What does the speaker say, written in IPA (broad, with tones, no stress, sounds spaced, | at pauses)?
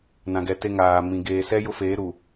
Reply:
n ã˨ ɡ ɛ˨ t e˦ ŋ aː˨ m ĩ˨ ɡ eː˨ s ɛ˦ j ʊ˦ f eː˨˦ ɾ u˨